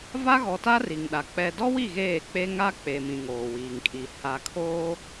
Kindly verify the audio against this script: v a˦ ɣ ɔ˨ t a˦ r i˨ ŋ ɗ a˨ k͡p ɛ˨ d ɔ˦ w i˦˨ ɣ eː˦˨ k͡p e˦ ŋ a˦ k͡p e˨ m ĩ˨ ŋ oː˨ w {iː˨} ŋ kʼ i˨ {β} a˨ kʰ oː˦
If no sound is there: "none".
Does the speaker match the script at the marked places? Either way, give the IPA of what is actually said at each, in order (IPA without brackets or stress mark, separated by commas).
iː˨, h